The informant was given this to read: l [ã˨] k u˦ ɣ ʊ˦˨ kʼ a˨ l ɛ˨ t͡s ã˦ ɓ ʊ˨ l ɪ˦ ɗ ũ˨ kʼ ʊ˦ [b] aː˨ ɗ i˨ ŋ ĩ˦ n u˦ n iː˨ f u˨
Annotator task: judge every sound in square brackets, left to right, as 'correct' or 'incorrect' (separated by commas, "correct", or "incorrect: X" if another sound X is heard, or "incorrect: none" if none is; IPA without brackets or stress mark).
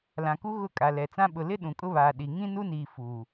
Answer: correct, incorrect: β